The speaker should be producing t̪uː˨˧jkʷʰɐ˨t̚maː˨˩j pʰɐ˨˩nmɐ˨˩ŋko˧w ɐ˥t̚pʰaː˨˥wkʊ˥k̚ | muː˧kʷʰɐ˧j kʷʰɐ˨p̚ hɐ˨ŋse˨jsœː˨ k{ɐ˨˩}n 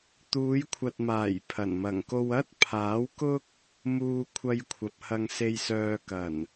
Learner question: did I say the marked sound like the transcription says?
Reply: yes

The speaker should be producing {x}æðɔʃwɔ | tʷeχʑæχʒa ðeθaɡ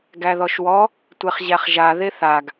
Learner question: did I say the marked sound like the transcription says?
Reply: no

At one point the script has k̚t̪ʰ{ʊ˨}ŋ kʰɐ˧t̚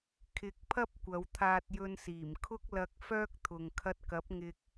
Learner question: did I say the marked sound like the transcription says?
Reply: yes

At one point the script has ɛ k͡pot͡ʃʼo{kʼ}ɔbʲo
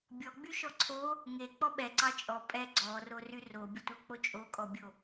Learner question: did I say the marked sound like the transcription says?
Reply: yes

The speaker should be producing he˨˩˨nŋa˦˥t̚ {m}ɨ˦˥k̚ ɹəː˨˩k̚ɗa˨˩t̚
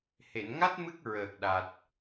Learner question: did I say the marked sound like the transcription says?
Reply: yes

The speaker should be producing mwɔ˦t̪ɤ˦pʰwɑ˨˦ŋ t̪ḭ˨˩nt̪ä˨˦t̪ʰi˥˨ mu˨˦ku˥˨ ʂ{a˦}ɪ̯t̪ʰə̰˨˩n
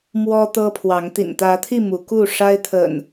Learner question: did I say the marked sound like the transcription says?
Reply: yes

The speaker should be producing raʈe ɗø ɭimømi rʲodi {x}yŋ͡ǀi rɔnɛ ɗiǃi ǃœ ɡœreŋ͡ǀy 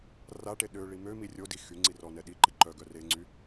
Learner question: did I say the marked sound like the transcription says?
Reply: yes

